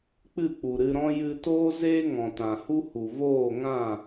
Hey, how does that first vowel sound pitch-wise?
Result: falling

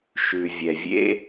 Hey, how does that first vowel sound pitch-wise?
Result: low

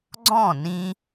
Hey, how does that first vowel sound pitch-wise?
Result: falling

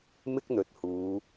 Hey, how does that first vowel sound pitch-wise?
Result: high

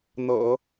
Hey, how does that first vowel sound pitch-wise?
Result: low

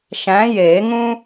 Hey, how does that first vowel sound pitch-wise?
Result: rising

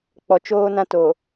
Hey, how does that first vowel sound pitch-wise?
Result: low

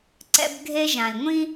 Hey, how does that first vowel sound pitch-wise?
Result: high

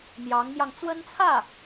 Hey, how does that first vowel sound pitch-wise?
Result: rising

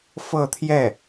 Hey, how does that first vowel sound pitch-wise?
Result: falling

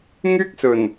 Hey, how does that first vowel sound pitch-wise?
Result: high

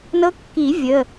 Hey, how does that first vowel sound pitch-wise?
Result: rising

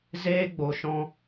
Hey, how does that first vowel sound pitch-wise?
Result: high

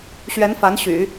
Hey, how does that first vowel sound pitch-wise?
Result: rising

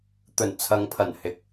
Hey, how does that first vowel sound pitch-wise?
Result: low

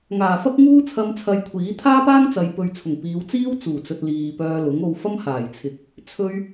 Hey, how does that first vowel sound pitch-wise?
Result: low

